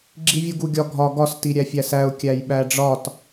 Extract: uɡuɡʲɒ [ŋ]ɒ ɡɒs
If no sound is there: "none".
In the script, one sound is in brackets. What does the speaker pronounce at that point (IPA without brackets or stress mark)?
ɡʱ